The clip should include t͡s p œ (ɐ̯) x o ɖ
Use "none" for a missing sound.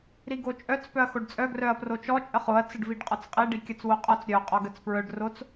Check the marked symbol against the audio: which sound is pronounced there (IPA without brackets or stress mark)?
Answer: ɐ̯